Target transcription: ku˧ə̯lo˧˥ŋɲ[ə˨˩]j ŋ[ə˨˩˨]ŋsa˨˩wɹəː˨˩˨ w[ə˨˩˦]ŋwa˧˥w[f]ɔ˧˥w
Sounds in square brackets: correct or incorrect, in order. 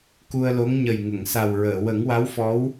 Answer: correct, correct, correct, correct

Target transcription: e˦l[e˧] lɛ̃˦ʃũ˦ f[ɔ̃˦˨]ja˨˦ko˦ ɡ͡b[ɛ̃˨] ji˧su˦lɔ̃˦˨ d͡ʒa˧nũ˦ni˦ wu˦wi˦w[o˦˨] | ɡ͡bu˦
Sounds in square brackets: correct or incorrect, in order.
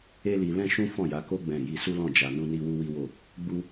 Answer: incorrect: i˧, correct, incorrect: ɛ̃˦˨, correct

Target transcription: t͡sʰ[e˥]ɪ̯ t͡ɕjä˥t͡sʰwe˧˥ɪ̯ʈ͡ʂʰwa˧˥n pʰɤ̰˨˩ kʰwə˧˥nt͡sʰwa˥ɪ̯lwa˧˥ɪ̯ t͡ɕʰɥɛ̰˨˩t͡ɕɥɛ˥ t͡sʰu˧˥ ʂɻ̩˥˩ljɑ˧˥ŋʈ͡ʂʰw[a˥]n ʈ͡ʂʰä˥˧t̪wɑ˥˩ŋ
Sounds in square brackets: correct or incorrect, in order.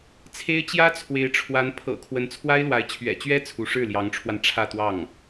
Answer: correct, incorrect: a˧

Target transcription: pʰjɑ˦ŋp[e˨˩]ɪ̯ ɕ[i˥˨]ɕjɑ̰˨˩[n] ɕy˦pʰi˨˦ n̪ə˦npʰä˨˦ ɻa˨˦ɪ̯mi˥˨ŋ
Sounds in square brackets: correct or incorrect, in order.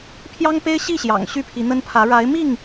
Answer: incorrect: e˦, correct, incorrect: ŋ

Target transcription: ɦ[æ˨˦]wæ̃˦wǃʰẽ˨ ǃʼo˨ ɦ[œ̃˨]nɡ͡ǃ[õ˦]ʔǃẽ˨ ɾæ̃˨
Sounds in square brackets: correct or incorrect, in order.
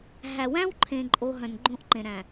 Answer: incorrect: æ˨, correct, correct

